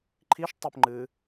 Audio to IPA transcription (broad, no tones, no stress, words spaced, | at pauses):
ǃʰiʃ tˤɵp ŋ͡ǃɨ